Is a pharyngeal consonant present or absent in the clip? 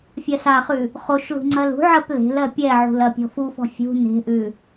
present